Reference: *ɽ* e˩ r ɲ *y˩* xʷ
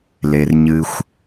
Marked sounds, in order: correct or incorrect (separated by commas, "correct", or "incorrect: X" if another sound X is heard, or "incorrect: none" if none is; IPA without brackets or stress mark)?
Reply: incorrect: l, incorrect: ɨ˩